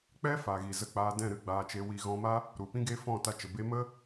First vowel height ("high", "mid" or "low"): mid